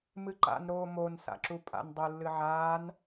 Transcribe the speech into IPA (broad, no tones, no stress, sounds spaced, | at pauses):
m ɨ ǃ a̰ n ɾ oː m o n s a̰ ǁ u pʼ a̰ n dˤ u lː ɨ ʕ aː n